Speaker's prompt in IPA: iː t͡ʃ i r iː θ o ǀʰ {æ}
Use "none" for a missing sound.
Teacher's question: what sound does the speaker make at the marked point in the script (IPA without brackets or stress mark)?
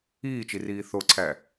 æ